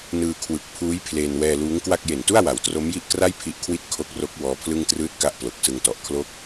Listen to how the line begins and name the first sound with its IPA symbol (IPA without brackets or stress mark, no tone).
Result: n